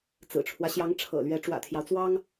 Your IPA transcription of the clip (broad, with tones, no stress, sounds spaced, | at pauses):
t͡s ɹ̩˨˩ ʈ͡ʂʰ w ä˦ ɕ j ɑ˧˥ ŋ ʈ͡ʂʰ ɤ̰˨˩ l ɥ ɛ˧˥ ʈ͡ʂ w ä̰˨˩ t̪ʰ j ɑ˦ ʊ̯ t͡s w ɑ˥ ŋ